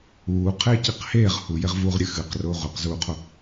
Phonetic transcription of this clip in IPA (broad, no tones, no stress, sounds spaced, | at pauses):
uː qʰ eː c i q h eː ʁ h u j e ʁ v uː ʁ ɾʲ ɨ x ɨ q r ʊː ʁʷ e q z uː qʰ o